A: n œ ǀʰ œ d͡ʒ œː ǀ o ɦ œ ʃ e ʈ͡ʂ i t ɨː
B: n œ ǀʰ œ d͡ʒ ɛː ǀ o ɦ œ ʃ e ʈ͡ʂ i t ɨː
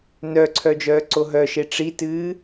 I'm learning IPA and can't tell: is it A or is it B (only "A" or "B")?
A